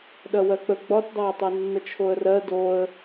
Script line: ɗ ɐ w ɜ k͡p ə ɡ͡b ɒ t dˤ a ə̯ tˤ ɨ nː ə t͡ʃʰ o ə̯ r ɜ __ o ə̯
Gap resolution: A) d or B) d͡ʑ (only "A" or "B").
A